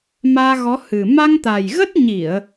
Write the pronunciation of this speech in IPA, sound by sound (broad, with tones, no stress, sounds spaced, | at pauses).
m aː˧ ɣ ɔ˨˦ h ɨ˨˩ m a˧ ŋ t̪ a˨˩ j ɣ ə˦˥ t̚ ɲ i˧˩˨ ə̯